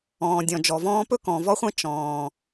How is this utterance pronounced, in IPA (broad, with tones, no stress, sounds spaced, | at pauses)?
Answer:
ɔ̃ː˨ dʲ ɔ̃˨ d͡ʒ ɔ˨ v ɔ̃ː˦ p ɵ˥ k ɔ̃˨ v ɔ˥ χʷ ɛ̃˥ t͡ʃ ɔ̃ː˨